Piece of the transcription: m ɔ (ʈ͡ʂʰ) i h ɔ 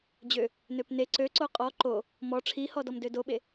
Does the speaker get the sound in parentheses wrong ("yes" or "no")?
no